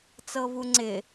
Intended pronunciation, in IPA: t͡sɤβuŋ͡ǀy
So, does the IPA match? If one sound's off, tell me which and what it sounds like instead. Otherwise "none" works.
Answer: y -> ɪ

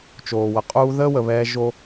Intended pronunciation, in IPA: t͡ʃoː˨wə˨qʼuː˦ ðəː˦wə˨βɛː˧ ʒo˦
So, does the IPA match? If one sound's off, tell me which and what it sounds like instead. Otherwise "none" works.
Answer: none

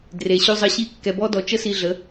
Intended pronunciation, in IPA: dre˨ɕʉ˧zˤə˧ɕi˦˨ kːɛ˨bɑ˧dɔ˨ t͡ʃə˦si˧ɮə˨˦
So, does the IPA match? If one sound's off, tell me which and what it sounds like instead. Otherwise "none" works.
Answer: ɑ˧ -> ɔ˧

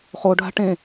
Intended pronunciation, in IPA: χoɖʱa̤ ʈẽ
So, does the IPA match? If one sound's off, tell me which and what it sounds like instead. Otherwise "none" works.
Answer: none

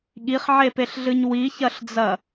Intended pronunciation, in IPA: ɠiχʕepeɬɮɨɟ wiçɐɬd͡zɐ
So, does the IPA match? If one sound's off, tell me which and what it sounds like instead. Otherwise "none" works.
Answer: ɟ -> ɲ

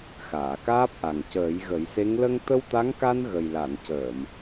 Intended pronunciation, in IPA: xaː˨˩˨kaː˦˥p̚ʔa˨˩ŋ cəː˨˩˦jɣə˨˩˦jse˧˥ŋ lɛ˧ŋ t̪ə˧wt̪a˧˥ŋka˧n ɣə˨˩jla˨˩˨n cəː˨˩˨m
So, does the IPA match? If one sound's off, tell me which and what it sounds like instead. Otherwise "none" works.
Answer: ɛ˧ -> ə˧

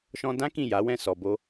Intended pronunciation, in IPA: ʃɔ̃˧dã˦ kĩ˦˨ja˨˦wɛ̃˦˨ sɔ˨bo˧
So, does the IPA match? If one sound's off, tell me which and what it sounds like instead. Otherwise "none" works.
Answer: none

